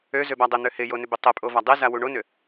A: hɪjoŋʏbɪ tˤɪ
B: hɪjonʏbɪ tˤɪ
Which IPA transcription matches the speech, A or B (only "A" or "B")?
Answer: B